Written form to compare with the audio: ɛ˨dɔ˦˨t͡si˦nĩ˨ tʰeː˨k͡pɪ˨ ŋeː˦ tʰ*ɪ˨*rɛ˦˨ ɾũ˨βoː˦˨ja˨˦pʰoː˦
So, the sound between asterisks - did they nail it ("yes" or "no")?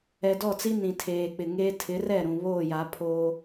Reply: no